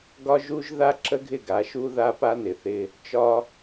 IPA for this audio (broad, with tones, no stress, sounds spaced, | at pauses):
ɡ ɒ˦ ʒ u˦ ʒ ð a˦ ǁ ə˦ ɡʱ ɪ˦˨ ɡ a˨˦ ʃ u˦ ð a˦ p a˦ n ɪ˨ θ ɪ˦ | t͡ʃ ɒ˦